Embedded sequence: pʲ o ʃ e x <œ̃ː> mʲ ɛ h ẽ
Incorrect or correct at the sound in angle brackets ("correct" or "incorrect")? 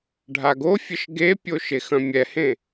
incorrect